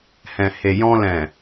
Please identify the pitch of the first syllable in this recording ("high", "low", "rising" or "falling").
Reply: low